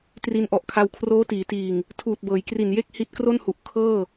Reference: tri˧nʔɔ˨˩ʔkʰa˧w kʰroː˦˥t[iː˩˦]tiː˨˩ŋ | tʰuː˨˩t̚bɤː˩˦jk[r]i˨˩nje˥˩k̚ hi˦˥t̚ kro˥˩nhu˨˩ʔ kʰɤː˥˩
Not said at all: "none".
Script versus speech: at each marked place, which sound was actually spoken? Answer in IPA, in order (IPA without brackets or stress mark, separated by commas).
iː˩˦, r